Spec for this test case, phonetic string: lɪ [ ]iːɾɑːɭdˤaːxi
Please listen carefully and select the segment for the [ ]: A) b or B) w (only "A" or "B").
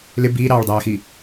A